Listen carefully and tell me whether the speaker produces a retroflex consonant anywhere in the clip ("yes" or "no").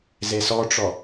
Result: yes